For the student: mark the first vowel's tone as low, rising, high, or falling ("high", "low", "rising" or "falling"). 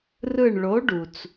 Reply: falling